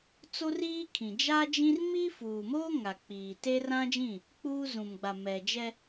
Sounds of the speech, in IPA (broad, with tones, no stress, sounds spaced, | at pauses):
t͡s o˦ r iː˦ kʰ ĩ˨ d͡ʒ a˦ d͡ʒ ĩ˦ r m i˦ f uː˨ m oː˦ ŋ a˨ k͡p iː˨ t e˦ r ã˦ d͡ʒ ĩ˦˨ | k͡p uː˦ z ũ˨ m ɡ͡b a˨ m ɛ˨ d͡ʒ ɛ˦